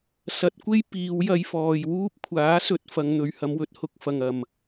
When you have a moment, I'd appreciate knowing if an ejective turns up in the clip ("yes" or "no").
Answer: no